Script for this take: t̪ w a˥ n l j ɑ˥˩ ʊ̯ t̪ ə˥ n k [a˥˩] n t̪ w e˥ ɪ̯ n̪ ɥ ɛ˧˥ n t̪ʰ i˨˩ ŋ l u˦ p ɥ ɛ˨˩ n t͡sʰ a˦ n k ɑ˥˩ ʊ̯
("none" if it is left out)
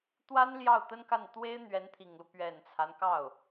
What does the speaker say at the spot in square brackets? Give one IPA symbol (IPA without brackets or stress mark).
a˥˩